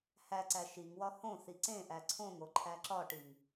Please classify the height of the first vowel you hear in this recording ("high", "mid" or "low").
low